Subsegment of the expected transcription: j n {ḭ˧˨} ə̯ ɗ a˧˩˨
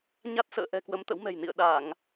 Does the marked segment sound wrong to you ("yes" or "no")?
no